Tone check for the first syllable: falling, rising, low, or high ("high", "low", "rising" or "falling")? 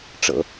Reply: low